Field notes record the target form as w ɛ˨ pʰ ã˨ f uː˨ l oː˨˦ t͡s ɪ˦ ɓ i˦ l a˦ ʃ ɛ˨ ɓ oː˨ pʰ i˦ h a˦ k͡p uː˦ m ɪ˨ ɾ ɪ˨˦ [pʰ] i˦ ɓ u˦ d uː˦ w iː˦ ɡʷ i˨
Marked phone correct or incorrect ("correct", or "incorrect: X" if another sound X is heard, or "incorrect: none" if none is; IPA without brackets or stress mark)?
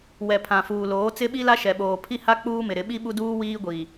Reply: incorrect: ɓ